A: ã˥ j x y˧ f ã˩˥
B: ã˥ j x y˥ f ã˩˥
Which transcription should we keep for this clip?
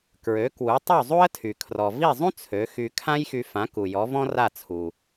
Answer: A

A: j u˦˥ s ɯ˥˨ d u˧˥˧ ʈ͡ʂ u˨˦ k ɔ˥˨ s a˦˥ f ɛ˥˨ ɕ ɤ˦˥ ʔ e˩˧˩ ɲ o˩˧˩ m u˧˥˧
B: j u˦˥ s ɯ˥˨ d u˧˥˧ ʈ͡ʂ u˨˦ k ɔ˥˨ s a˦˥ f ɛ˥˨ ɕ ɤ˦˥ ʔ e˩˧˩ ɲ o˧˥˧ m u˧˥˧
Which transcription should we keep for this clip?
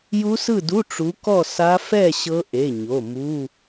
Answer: A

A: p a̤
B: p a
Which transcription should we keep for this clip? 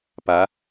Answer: B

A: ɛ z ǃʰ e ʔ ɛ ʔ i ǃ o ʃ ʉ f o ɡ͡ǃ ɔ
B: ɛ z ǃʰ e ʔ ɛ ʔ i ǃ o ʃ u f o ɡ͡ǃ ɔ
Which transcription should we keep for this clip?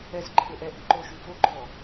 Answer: B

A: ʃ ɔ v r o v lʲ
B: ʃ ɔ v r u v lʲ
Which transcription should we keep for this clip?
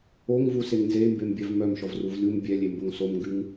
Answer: B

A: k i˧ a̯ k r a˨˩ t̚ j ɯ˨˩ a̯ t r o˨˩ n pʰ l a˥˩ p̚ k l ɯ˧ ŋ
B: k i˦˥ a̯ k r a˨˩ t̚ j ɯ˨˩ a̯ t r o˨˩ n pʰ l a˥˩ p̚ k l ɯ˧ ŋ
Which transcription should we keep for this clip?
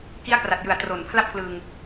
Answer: B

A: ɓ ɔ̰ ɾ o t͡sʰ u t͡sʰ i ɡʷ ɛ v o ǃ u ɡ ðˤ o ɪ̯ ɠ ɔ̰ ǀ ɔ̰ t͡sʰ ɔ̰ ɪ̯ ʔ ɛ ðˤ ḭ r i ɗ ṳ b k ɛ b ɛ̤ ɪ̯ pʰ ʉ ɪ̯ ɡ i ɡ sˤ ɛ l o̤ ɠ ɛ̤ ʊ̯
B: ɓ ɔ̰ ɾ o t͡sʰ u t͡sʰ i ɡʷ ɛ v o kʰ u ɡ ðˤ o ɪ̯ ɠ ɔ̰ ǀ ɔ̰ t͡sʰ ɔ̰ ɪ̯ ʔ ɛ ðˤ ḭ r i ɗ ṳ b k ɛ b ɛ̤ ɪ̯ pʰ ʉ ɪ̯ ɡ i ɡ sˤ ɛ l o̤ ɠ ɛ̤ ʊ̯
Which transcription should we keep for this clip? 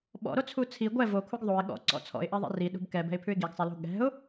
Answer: B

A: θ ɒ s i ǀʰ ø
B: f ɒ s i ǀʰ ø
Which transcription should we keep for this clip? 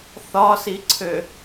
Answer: A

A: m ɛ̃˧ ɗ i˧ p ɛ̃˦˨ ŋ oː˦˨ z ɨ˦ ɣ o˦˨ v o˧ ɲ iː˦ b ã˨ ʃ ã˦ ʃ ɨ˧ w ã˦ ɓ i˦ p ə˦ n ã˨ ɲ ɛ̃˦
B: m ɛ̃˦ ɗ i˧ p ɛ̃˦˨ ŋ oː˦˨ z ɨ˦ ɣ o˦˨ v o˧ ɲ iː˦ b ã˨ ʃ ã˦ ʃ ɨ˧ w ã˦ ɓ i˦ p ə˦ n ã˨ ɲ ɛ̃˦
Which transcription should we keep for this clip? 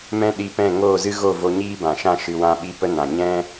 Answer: B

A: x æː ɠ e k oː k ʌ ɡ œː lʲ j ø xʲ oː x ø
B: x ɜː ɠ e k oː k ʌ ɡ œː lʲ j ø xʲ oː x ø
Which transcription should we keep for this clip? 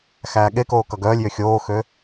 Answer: A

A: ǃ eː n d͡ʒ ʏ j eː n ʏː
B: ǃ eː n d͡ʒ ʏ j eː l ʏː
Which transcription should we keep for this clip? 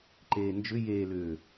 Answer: B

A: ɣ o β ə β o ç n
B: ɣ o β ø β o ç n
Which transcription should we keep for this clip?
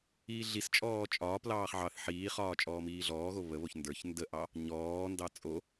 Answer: A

